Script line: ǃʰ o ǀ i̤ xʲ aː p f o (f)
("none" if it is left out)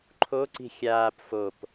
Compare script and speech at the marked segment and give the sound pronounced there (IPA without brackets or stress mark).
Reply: p